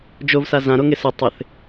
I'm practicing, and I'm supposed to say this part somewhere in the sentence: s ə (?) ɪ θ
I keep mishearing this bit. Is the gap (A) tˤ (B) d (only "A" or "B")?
A